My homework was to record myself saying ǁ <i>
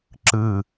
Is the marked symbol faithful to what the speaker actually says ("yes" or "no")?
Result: no